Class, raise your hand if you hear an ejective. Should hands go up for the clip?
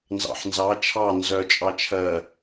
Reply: yes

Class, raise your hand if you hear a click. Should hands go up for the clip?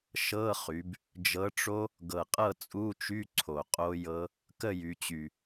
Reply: yes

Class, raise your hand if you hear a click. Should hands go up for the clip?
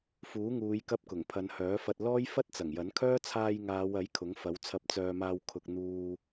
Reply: no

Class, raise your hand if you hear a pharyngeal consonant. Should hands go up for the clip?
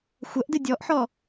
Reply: yes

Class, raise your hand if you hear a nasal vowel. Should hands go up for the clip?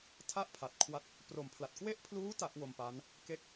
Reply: no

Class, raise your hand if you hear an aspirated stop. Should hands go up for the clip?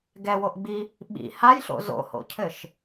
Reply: yes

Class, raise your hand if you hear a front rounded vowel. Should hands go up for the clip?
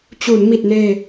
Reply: no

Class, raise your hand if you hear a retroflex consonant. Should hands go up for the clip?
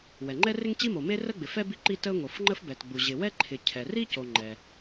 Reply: no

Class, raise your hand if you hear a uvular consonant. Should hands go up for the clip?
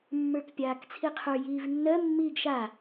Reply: yes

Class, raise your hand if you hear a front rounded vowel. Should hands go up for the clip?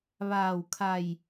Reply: no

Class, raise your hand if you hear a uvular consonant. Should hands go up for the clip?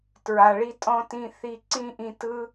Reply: no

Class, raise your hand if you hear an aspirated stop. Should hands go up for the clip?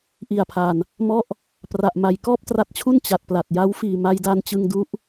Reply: yes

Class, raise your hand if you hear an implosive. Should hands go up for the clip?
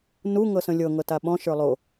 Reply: yes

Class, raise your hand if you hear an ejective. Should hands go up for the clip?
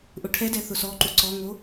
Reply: no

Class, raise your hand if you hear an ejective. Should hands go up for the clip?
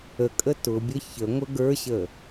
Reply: yes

